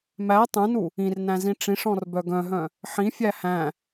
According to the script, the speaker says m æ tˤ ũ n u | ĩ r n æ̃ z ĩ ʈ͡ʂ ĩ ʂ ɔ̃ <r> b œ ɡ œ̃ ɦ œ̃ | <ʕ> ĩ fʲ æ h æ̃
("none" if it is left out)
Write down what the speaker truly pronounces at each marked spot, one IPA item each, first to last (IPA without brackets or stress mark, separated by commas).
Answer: r, ħ